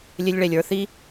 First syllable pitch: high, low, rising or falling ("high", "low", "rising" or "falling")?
high